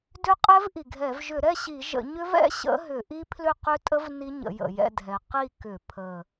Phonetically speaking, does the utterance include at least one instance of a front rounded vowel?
yes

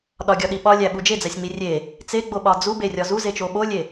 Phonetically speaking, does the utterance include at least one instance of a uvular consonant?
no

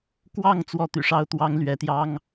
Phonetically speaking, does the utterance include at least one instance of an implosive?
no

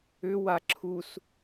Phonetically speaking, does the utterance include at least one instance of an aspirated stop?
yes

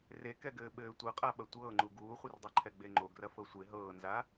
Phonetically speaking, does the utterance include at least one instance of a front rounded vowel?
no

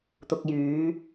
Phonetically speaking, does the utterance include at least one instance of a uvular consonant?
no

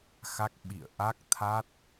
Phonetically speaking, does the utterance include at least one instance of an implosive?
yes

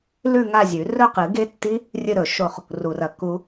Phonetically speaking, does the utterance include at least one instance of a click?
no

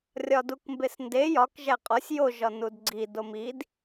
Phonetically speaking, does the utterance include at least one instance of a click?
yes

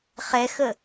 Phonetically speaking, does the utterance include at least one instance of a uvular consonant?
yes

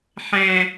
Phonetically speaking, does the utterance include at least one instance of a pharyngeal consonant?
yes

